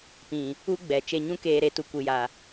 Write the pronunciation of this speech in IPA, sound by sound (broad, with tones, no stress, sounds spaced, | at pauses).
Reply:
p ĩ˨ | u˦ ɡ͡b ɛ˨ t͡ʃ e˧ ɲ ũ˦ k eː˧ ɾ e˧ t u˨ kʷ ɨ˨ j a˨